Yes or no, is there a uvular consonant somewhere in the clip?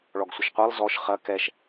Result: yes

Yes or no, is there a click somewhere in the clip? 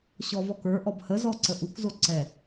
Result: yes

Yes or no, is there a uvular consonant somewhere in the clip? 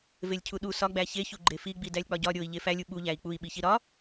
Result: no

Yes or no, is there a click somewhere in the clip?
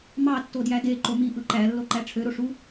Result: yes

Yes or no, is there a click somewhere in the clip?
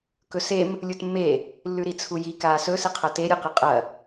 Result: no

